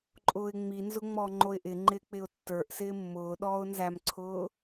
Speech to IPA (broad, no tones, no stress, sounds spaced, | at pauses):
ǃʼ ʊː ɪ̯ ŋ͡m i n z ʊ ŋ͡m ɔ ŋ͡ǃ o ɪ̯ ʔ ɪ ŋ͡ǃ ɪː k͡p ɪ ʊ̯ tː ə˞ ʔ s ɪː mː ʊː ɗ ɔː ʊ̯ n z æ m ǀʰ ʊː